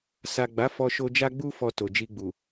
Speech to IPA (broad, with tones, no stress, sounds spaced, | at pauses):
s a˨ ɡ͡b a˨˦ f ɔ˧ ʃ o˧ d͡ʒ a˧ ɡ͡b u˧ f ɔ˨ t o˨ d͡ʒ i˧ ɡ͡b u˨